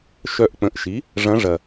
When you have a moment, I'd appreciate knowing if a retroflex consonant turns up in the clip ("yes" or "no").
yes